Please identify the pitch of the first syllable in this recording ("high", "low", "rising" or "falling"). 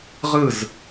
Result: falling